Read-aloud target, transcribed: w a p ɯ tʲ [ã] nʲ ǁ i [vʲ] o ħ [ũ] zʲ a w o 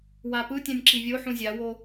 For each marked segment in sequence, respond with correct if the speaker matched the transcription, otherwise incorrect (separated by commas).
correct, correct, correct